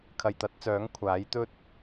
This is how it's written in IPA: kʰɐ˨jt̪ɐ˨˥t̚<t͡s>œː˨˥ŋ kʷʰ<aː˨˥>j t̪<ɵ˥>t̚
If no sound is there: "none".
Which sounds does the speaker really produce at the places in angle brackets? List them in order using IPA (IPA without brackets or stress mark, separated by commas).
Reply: t͡s, aː˨˥, ɵ˥